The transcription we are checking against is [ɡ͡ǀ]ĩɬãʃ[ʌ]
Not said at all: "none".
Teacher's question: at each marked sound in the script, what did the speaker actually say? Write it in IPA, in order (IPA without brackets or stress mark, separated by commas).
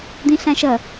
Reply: d̪, ʌ